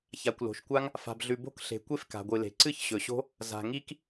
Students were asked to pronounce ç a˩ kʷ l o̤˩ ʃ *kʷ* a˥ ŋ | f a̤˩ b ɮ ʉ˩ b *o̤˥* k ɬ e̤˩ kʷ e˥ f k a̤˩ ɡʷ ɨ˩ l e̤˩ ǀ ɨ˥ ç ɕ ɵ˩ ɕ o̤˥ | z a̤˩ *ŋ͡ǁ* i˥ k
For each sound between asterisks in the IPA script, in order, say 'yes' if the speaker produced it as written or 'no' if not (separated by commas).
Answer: yes, yes, no